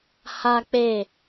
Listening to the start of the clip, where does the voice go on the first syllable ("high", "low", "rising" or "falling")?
high